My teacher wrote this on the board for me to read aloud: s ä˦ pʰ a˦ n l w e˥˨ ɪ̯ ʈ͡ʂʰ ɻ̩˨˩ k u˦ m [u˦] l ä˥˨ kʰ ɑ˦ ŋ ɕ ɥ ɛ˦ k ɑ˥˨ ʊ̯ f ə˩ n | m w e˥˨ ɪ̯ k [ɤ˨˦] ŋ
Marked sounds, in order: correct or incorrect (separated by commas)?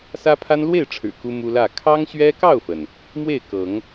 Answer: correct, correct